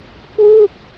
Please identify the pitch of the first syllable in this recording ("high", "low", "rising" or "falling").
falling